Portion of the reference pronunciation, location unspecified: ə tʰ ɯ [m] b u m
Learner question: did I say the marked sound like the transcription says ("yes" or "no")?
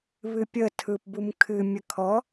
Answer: no